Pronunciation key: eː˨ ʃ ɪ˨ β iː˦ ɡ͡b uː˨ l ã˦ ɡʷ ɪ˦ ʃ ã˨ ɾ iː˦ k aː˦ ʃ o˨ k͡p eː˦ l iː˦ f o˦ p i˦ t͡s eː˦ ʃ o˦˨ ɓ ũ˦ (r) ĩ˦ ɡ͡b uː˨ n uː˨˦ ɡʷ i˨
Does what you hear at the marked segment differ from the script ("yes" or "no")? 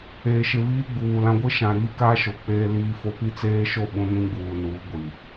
yes